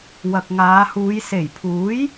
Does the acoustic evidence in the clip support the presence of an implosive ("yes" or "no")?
no